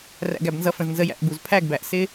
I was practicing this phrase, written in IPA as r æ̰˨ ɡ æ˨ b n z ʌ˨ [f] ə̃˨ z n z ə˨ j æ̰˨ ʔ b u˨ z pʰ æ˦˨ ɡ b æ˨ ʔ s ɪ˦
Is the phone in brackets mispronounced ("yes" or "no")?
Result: no